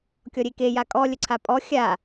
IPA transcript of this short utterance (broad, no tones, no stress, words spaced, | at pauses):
kʲɔɾʲeke jakʼɔ lʲəǀʰapʼɔ xʲa